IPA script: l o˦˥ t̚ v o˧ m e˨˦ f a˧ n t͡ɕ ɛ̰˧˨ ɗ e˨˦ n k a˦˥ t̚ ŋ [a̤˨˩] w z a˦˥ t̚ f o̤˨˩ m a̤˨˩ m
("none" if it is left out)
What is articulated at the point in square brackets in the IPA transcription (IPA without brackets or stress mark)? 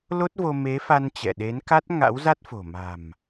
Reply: a̰˧˥